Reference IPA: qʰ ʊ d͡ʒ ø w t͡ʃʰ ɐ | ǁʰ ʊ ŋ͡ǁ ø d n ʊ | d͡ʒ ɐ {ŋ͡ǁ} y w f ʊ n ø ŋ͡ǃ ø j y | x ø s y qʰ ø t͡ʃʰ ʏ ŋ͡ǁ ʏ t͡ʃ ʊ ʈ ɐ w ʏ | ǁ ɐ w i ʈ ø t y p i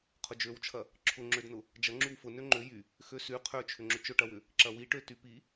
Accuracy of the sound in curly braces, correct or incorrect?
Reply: correct